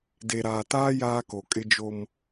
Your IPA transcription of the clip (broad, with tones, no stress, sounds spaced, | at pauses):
d e˨ ɾ aː˨ t aː˦ j aː˦ k o˨ kʼ ɪ˦ d͡ʒ o˦ m